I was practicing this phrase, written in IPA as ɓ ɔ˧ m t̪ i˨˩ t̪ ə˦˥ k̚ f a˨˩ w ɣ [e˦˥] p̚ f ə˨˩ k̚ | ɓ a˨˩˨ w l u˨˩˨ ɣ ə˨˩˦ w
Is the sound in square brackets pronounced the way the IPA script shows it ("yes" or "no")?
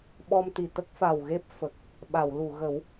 yes